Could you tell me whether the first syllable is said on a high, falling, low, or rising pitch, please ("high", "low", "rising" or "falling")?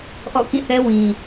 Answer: falling